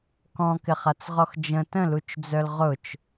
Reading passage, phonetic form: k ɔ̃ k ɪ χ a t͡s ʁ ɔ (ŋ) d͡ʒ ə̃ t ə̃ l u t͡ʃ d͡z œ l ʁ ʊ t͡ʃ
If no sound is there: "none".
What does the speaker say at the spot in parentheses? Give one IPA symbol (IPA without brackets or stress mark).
x